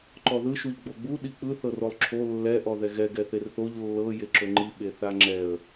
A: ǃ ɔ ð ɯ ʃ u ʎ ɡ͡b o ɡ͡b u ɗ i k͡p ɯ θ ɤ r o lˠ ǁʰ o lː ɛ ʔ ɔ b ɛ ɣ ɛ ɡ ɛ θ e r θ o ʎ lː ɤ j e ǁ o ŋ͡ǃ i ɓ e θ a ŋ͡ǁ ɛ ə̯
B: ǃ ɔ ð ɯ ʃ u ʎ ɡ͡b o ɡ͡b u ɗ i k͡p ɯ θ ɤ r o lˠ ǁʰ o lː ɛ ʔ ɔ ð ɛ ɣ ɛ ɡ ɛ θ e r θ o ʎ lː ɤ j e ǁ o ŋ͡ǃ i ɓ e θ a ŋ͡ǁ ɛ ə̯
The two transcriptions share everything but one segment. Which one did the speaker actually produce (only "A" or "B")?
B